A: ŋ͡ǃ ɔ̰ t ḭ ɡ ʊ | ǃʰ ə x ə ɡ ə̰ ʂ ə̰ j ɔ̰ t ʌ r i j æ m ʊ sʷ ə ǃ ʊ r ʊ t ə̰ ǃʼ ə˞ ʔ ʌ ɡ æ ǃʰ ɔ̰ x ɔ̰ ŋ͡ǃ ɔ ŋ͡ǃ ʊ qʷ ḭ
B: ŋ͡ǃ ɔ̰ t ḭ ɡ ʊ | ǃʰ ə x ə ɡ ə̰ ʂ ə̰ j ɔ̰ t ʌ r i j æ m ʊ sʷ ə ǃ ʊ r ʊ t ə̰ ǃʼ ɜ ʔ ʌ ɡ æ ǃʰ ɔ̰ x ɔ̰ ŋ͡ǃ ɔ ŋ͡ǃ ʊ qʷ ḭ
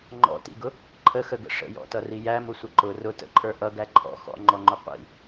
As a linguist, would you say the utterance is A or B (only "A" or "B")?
A